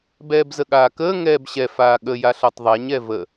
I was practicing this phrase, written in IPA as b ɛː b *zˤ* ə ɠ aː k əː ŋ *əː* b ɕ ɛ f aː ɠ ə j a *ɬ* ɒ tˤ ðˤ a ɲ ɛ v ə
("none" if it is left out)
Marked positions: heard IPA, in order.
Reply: z, ɛː, ɬ

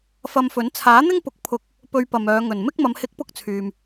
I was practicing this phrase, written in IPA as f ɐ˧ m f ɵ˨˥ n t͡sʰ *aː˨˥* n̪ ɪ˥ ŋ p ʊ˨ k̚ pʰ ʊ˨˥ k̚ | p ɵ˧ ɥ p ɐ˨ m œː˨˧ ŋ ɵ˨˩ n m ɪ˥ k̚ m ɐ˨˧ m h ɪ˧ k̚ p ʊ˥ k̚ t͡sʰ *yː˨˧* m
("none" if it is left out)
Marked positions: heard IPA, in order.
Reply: aː˨˥, yː˨

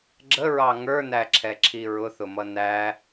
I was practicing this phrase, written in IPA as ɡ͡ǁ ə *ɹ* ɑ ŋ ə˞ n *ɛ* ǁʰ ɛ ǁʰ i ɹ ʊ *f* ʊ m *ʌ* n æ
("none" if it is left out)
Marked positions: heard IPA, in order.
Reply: ɹ, æ, θ, ʌ

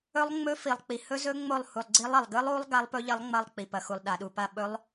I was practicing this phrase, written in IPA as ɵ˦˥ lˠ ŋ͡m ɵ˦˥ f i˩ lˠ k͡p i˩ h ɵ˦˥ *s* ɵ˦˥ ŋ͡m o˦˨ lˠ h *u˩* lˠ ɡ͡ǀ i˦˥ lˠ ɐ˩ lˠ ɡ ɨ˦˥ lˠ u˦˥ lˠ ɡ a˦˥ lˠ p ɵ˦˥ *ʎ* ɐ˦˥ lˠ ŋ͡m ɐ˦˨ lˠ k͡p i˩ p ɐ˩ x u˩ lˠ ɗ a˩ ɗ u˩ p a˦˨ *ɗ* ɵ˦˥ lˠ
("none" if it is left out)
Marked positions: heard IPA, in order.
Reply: z, u˩, ʎ, ɓ

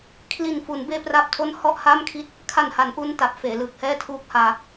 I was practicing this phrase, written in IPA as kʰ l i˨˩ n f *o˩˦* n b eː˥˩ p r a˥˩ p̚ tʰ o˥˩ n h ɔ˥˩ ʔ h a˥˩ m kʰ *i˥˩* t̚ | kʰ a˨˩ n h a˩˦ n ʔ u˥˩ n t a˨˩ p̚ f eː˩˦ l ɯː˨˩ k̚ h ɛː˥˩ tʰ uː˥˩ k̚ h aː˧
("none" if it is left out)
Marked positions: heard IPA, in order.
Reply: u˩˦, i˦˥

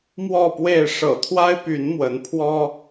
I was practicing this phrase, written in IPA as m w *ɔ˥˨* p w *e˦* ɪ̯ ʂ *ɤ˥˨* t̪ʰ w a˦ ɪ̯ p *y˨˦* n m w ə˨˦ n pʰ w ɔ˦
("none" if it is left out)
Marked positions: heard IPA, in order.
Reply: ɔ˥˨, e˥˨, ɤ̰˨˩, y˨˦

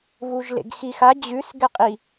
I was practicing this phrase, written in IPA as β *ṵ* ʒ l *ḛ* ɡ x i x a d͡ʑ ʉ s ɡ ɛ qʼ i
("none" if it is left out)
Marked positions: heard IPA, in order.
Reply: u, ḛ

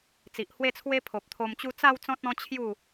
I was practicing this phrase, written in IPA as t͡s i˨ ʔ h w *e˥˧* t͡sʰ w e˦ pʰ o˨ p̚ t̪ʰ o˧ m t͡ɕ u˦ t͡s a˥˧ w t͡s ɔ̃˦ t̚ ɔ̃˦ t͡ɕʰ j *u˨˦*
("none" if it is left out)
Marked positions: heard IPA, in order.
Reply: e˥˧, u˥˧

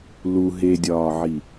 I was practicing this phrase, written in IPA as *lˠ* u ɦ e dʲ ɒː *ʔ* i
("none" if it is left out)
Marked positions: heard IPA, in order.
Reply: l, ʕ

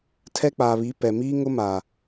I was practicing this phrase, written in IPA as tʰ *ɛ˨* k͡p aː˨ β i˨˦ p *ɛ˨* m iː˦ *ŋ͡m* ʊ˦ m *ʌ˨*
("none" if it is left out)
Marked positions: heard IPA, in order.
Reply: ɛ˦, ɛ˨, ŋ, a˨

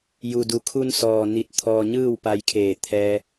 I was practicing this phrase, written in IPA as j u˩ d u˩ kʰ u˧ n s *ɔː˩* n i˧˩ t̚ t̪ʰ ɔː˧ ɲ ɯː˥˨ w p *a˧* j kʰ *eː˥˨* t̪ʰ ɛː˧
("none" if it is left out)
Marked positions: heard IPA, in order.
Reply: ɔː˩, a˧, eː˧˩

